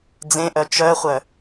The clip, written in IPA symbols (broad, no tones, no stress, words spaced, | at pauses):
d͡zẽʔœ t͡ʃœχʷœ